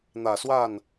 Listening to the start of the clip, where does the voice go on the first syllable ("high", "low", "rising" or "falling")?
low